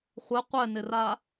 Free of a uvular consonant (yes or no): no